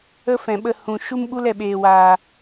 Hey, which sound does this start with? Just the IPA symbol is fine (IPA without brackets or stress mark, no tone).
ə